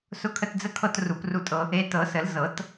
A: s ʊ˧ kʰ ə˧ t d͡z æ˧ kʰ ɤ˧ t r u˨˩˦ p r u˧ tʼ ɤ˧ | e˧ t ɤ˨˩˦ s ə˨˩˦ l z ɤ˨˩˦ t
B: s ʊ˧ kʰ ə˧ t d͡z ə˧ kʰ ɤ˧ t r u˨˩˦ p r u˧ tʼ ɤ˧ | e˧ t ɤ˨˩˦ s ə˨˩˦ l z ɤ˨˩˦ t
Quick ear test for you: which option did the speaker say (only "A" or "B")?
B